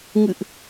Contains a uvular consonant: no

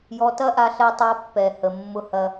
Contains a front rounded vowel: no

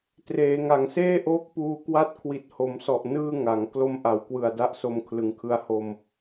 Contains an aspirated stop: yes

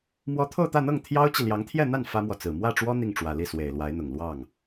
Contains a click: no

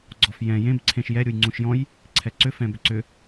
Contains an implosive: no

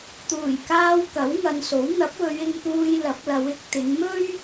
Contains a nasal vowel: no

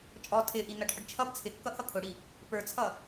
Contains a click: no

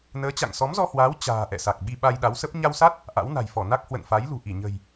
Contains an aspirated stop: no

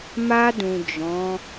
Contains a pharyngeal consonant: no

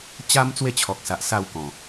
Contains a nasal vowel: yes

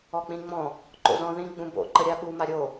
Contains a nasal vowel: yes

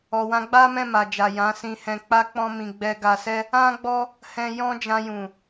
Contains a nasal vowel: yes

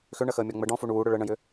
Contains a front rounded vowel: yes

